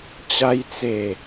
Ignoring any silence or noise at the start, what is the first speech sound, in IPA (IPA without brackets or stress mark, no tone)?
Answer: t͡ɕ